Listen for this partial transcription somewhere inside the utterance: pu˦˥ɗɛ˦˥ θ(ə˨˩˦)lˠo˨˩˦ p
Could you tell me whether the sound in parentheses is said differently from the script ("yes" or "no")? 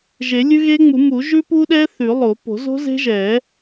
yes